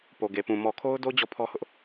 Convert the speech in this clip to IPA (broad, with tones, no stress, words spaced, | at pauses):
po˨ɡe˨pũ˨ mɔ˨kʰo˦ʊ̯do˦ d͡ʑɔ˦˨pʰɔ˦hʊ˦ʔ